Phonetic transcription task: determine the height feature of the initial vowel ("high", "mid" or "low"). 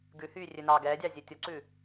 high